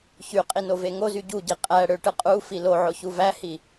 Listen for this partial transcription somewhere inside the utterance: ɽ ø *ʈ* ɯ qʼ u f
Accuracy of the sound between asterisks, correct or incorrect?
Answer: correct